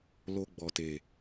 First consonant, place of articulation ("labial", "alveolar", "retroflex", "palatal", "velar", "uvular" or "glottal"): alveolar